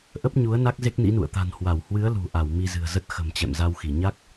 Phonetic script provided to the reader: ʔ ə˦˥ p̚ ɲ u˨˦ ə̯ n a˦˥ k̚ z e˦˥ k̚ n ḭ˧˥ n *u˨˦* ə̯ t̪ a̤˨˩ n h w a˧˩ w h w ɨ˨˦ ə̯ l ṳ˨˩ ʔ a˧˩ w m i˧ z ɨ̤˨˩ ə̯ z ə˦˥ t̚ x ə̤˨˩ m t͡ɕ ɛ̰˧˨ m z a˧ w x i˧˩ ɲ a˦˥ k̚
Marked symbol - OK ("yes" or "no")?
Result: no